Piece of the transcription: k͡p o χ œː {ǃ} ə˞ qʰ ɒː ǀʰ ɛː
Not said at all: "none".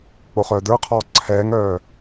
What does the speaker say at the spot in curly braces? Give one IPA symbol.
d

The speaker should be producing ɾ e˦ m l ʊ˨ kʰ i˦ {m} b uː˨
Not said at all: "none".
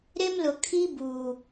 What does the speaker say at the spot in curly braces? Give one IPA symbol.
none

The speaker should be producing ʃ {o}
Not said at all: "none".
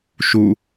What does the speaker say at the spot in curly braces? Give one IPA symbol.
u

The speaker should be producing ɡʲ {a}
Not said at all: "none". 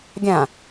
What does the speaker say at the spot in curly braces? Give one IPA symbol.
ã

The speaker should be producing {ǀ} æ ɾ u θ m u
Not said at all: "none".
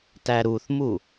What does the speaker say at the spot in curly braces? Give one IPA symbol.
t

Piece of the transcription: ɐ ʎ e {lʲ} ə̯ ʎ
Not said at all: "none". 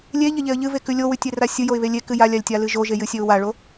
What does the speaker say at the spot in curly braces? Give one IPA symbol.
none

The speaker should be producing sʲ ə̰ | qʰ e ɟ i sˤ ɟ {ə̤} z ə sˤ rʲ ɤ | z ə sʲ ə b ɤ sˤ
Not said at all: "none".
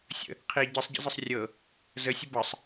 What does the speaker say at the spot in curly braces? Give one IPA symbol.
ə̰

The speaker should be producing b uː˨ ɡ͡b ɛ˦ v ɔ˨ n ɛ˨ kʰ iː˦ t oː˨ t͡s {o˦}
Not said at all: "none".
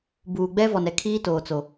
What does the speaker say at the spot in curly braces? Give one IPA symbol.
o˨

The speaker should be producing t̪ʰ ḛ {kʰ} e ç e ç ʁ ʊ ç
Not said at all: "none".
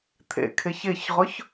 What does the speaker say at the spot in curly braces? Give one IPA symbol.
kʰ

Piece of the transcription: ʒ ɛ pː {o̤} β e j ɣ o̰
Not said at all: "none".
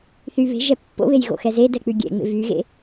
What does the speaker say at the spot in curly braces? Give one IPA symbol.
o̰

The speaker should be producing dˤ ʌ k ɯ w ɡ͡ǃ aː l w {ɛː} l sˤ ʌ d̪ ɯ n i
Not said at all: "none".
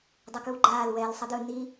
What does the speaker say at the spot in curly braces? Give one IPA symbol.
ɛː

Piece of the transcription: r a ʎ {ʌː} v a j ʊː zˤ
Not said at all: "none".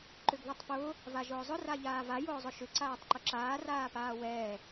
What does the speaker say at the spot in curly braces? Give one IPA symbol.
aː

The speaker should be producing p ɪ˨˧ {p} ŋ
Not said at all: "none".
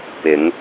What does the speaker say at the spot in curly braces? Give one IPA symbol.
none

